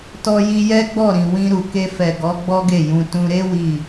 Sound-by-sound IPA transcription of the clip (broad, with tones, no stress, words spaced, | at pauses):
tɔ˧ji˧jɛ˦ɡ͡bɔ˦˨ ɾĩ˨wĩ˧ ɾu˨ke˧ fɛ˨ ɡɔ˨˦ ɡ͡bɔ˦ɡe˦˨jũ˧ tũ˧ɾe˦ wi˦˨